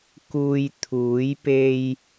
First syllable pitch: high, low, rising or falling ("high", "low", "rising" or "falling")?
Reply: low